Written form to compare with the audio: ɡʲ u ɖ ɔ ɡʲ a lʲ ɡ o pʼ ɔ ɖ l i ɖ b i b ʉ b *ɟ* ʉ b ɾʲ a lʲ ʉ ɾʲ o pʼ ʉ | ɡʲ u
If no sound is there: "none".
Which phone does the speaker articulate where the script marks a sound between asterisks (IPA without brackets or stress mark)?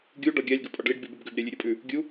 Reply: ɡ